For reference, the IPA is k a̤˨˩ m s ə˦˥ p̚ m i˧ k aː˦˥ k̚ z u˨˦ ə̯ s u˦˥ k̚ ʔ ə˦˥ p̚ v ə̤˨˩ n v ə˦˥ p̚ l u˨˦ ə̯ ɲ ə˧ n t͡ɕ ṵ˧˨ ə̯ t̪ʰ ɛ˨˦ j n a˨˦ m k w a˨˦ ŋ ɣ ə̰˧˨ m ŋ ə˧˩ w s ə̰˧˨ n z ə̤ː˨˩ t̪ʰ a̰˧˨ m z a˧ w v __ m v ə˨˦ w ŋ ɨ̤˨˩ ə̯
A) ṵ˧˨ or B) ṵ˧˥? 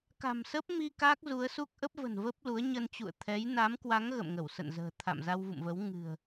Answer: A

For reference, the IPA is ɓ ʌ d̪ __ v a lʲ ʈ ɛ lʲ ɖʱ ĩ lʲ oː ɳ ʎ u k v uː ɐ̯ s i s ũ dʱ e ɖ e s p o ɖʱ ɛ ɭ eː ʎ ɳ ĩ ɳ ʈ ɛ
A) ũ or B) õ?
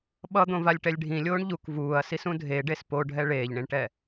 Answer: B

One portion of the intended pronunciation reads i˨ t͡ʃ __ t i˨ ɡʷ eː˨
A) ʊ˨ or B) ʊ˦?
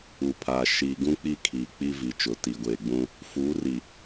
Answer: A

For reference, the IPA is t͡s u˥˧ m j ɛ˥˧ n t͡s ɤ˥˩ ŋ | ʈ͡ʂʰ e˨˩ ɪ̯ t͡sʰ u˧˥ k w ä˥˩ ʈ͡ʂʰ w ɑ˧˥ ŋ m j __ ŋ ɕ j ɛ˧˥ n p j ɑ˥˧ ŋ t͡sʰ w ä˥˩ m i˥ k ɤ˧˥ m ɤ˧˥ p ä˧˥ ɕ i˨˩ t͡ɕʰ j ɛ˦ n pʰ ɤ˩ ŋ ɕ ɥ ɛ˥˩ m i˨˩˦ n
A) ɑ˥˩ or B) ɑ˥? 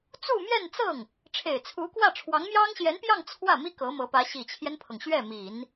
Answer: B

